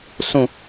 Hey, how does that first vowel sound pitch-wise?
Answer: falling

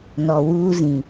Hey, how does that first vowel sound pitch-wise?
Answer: low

